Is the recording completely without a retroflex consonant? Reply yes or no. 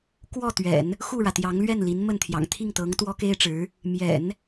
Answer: no